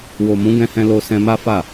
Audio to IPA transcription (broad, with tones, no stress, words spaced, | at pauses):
wo˨mũ˨˦ ɡɛ̃˧hɛ̃˧ lo˧sɛ̃˧ma˦fa˦˨